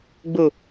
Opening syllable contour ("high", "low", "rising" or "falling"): low